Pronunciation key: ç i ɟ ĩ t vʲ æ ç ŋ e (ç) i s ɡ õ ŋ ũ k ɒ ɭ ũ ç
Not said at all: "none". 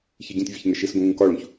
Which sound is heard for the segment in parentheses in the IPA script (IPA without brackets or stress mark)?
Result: ʃ